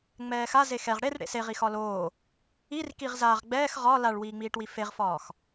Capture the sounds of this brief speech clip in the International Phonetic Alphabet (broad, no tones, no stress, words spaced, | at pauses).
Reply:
ŋ͡mɛːxa zexɛʁ ɽer ɽḛseʁi xɒloː | ir kiʁzaːʁ ɡ͡bɛːx ʁɒ laɭwiːŋ͡miːʈwi feʁfɒːx